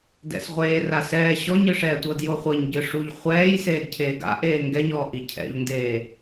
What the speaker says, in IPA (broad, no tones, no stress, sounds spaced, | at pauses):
d ɛ̰ s ʁʷ eː r a s ɛː ɕ ɔ ɲ ɯ ʂ ɛː tʷ ɤ d j o χʷ ɤ ɲ ɟ ɯ ʂ u ʎ χʷ ɛː j s eː d cʰ eː ɡ a̰ ʔ eː ŋ ɡ ɛ ɲ ɔː ʔ i cʰ ɛ̰ ʎ n d eː